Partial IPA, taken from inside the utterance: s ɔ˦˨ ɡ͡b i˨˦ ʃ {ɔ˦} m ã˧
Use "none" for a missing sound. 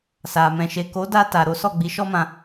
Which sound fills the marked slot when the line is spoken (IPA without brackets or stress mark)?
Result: ɔ˦